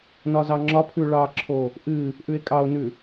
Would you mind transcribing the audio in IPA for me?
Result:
nɒzɑŋ͡ǁɒpʰʉ ɭɑǁʰo | ʔɨ | ʔʉe̯kʼɑo̯nʉ

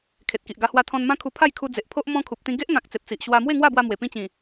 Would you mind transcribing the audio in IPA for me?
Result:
kʰe˨t̚ki˨ʔɡa˧hwa˧ t̪ʰɔ̃˧nmã˦kʰu˧ pʰa˥˧jkʰu˧d͡ze˨ʔpʰo˦ʔ mɔ̃˧ kʰu˨p̚t̪ĩ˧ ɡe˦ʔŋã˨k̚ t͡se˨p̚t͡si˨ʔ ɕwa˧mwe˥˧ŋwa˥˧bwa˧ mwe˨˩pĩ˥˧ t͡ɕĩ˨˩

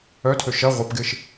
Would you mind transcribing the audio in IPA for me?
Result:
œtʰø ʃɐ ʁʷɐpɡɪʃ

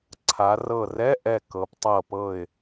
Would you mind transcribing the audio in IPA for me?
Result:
ǀʰa˩˧rɤ˧˩rɛ˧˥˧ʔɛ˧˩ kɤ˩˧ptˤɤ˧˩ pɤ˧˩ɪ̯

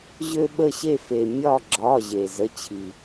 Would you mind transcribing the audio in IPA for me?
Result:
ʑø˧ɓə˧˩ɕe˧˩fe˩ mʲɒ˧˩ ɡ͡ǁɒ˩˧˩ ʑe˩ zə˩˧˩t͡ɕʰi˩

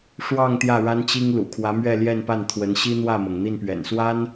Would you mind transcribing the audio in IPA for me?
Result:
ʂwɑ˥˧ŋ t̪jä˥˩ɻa˥nt͡ɕi˥ŋlṵ˨˩ kʰwä˧˥mɥɛ˥˧ljɛ˥˧npa˥˩n t̪ʰwə˧˥n ɕi˥n̪wä˥˩mɤ˩ŋ n̪i˥˩npɥɛ̰˨˩nswa˥n

